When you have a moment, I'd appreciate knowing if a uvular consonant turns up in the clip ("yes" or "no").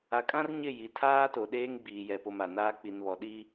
no